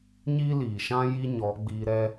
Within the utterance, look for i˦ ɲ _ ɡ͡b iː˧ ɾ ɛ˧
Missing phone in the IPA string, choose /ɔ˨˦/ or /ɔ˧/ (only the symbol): ɔ˨˦